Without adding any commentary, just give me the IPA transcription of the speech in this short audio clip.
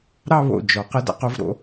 ɾ ɑ˥˧ β o̰˧˩ d͡ʒ ɔ˩˧ q ə˧ d a̰˩˧ q o˩˧ v ɾ o̰˩˧

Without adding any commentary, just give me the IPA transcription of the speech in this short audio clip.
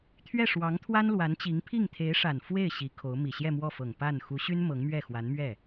t̪ʰ ɥ ɛ˥˩ ʂ w ɑ˧˥ ŋ t̪ʰ w a˥ n l w a˧˥ n t͡ɕ i˧˥ ŋ pʰ i˥˩ ŋ t̪ʰ e˧˥ ɪ̯ ʂ a˨˩ n f w e˥˩ ɪ̯ ɕ i˧˥ kʰ o˧˥ ʊ̯ m i˨˩ ɕ j ɛ˥˧ m w ɔ˥˩ f ɤ˨˩ ŋ p a˥˩ n x u˧˥ ɕ y˥ n m ɤ˧˥ ŋ m ɥ ɛ˥˩ x w a˧˥ n m ɥ ɛ˥˩

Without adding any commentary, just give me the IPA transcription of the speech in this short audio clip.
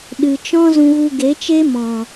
ɗ ɨ˨ t͡ʃ ɔ̃˦ z ũ˧ ɣ u˧ ɡ e˨˦ t͡ʃ e˦ m ɔ̃˨

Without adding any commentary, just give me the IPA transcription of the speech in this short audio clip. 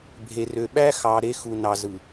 bʱ e˨ r ø˨ ɓ æ˦ x ɑ˨ ɾ e˦ x u˨ n ɑ˨ z ɯ˨

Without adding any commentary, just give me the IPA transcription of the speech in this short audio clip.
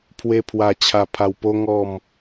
pʰ w e˧ pʰ w a˨˩ t͡ɕʰ a˨˩ pʰ a˨˩ w p o˧ ŋ ɔ˨˩ m

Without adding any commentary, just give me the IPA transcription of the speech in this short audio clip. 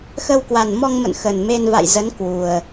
x ə˧ w k w a˨˩ n m ɔ˧ ŋ m ə̰˧˨ n x ə˨˩ n m e˧ n v a̰˧˨ j z ə˨˦ n k w u˨˩ ə̯

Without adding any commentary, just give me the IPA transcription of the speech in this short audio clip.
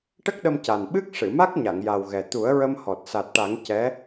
ʈ ə˦˥ k̚ ɗ ə˧ m c a˨˩ n ɓ ɨ˦˥ k̚ ʂ ɨ˨˩˨ m a˦˥ k̚ ɲ a˨˩˨ ŋ j a˨˩ w ɣ ɛ˨˩ t̪ u˨˩˦ ə̯ ɹ ə˧ m h ɔ˨˩ t̚ s a˨˩ t̚ ʈ a˨˩˦ ŋ c ɛ˧˥

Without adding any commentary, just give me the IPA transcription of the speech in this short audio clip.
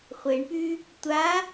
χʷ e ɳ p y | tʷ a

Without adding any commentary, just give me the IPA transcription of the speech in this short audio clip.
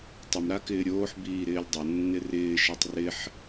tˤ ə m ɾ a k ɪː ɾʲ oː ħ b iː ɾ ɪː lʲ dˤ ɐ nː ɪ r ɪː ʃ e tˤ r ɪ ħ

